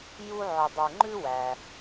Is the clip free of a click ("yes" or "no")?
no